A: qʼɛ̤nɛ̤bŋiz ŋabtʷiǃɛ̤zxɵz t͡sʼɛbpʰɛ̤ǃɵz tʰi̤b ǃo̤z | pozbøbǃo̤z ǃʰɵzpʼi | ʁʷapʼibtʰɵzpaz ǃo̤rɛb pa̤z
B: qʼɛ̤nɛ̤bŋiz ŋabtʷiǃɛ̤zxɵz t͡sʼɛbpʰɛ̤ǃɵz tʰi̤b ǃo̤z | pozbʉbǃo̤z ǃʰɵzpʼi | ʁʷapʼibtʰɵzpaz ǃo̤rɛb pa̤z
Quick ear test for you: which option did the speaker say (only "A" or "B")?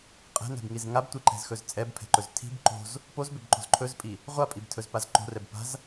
A